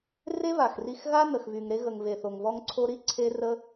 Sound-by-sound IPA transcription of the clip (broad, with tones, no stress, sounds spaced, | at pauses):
r e˦ β a˨ x r i˧ x ɣ a˦ n ə˨ x β y˨ ŋ ɾ e˧ ɣ ə˨ ŋ β e˨ θ o˨ ŋ β ɔ˧ ŋ ǀʰ o˧ ɾ i˦ ǀʰ e˦ r ə˦